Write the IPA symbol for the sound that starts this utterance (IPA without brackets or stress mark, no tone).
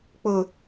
k͡p